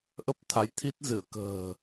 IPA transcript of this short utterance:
ʔə˦˥p̚t̪ʰa˨˦jt̪ʰi˦˥t̚zɨ˧˩ə̯ kə̤ː˨˩

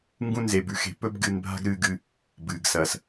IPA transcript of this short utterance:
ŋɡũ˥ nze˧bʉ˥xe̤˧ pɵ˥b ɡɨː˧nbʱa̤˥ɡɾɨː˧ɡɨ˧ | bɨː˩ɡsɐ˩s

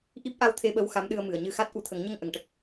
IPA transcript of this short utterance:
ʔi˦˥p̚ʔa˧wt̪ʰe˧ɓə˧w xa˧˥mɗɨ˧ə̯mɨ˨˩˨ə̯ ɲɨ˧xa˦˥t̚ ʔu˨˩˨t̪ʰə˨˩˦ŋɲə˧ŋ ʔə˨˩˨ŋʈə˦˥k̚

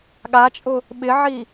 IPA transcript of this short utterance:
ɠat͡ʃʼʊ | ɓɪʕi

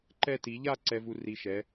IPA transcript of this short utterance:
ǃɛ˥˧ti˨˥ ʎa˥˧ ǀɛ˧vu˧ ri˧ʃɛ˨˥

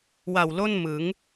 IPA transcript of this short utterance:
wa˨˩wlo˥˩nmɯ˩˦ŋ

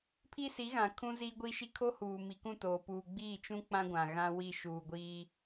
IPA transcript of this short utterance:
pʰi˦si˨˦ɣã˨ kʰũ˦ziː˦ɡʷi˦ʃi˦ kʰo˦huː˨ mi˨kũ˦˨toː˨ puː˨ɡ͡biː˦˨t͡ʃũ˦ k͡pã˦ ɡʷã˨ɣã˦wi˦˨ ʃuː˨ɡʷiː˦

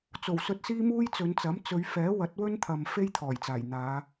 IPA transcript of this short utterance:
t͡so˨˩w sɵ˧t̚siː˥muː˥j t͡sɵ˨˧nt͡sɐ˨˥m t͡sɵ˨˧ɥfɛː˨˥ wɐ˨˥t̚wɵ˥nt̪ʰɐ˨m fe˥jt̪ʰɔː˨˩jt͡saː˨˩j n̪aː˨˧

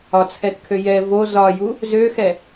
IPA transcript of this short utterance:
ɒt͡sʰɛtkʰø jɛ vo zɒju | zøxɛ

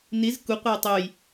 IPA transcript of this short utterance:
niz kuqʷɐj tˤuj

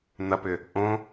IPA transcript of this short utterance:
n̪ɐpʏ | ʔõ

